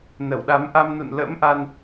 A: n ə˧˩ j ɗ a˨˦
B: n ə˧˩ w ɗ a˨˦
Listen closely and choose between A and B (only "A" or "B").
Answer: B